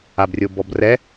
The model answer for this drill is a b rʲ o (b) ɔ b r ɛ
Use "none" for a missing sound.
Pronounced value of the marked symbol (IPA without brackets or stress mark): b